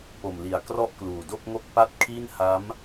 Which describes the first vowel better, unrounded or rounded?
rounded